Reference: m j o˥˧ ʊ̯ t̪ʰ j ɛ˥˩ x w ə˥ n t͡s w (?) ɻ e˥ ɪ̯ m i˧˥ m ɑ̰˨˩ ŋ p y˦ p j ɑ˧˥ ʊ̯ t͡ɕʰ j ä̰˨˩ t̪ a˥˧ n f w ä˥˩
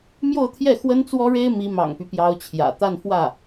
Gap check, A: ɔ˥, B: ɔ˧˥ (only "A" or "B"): A